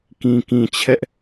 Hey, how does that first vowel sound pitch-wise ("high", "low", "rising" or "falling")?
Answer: low